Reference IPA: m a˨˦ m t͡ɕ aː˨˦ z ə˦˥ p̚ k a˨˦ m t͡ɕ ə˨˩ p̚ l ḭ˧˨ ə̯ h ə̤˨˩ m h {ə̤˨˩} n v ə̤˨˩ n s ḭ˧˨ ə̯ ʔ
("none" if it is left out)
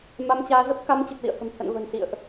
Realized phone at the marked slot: ə̰˧˨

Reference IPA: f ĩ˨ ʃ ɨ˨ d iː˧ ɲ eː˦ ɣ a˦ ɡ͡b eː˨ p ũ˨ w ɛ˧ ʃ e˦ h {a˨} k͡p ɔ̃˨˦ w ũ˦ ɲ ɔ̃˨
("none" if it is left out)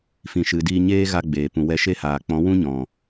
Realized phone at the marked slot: aː˨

